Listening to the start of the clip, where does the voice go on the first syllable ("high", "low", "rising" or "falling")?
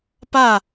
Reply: falling